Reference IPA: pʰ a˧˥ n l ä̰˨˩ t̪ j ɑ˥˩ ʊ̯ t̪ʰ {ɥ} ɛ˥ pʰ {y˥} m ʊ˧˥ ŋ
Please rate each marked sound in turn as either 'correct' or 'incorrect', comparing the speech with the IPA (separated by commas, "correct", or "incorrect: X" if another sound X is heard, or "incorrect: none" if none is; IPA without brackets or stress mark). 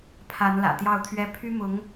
correct, correct